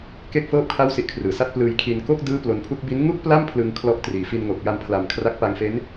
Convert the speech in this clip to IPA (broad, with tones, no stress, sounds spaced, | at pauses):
k e˥˩ k̚ f ɤː˥˩ p̚ kʰ a˥˩ w s i˦˥ ʔ kʰ r ɯː˩˦ s a˥˩ t̚ p l ɯː˧ j kʰ i˧ n k o˥˩ k̚ d ɯː˥˩ p l o˧ n pʰ u˥˩ k̚ b i˦˥ n ŋ u˥˩ k̚ p l a˥˩ m pʰ l ɯ˧ ŋ kʰ l ɔ˦˥ ʔ t r iː˨˩ f i˧ n ŋ o˨˩ k̚ j a˧ m pʰ l a˨˩ m kʰ r a˦˥ k̚ p a˧ ŋ f e˦˥ n